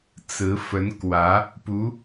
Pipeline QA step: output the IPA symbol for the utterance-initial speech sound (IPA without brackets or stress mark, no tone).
t͡s